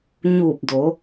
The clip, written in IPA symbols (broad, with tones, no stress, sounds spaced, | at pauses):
ɲ uː˧˩ p̚ d o˩˧